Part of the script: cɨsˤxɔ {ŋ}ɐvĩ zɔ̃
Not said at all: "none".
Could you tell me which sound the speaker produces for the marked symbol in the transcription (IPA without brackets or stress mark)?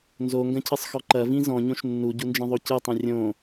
ǃ